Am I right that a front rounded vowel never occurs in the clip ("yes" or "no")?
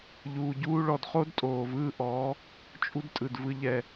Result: yes